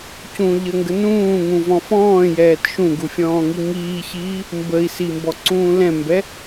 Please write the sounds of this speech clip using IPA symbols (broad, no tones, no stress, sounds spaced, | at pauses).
c ũ ʎ ə ŋ ɡ ə n ũː ŋ ũ v ɔ̃ f ɔ̃ː j ɛː t ʃ ũ ɡ u fʲ ɔ̃ː ŋ i ŋ iː ç iː | m b ə i̯ s i m b ɔ ǀ ũː l ɛ̃ m b ɛ